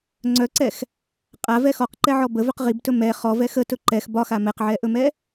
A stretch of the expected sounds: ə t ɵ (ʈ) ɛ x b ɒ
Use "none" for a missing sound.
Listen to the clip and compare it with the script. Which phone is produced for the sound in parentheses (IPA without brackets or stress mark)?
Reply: ǃ